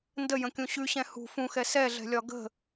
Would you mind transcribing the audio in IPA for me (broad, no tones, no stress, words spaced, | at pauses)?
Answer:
ndəjə̃kʲũ ɕʉɕɛ̃ hṳ fũxɛ sɛɮɛ̤lʲɒ ɡə̤